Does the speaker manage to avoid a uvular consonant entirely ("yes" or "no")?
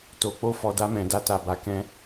yes